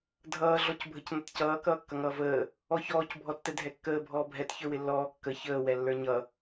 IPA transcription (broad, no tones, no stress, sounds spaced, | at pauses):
dʱ ʌː ɮ ɔ c bʱ ə c n ʌ t c ʌː k ʌː kː ʌ ŋ ʌː v əː | ɔ ç ɔː c bʱ ɔ tː ɛ dʱ ɛ kː əː bʱ ɔː bʱ ɛ t ç ə˞ w ɪ lː ɔː kː ə ç əː w ɛ lː ə˞ ɲ ʌ